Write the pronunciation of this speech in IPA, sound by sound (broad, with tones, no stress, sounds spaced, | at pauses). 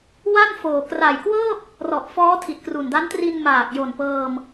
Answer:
w a˥˩ n f oː˨˩ k r a˨˩ j k w ɤː˥˩ p̚ | r ɔ˨˩ ʔ f ɔː˦˥ tʰ i˨˩ t̚ k r u˨˩ n d a˦˥ n t r i˧ n m aː˨˩ k̚ j o˨˩ n p ɤː˧ m